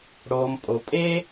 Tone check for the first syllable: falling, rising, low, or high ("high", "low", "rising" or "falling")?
low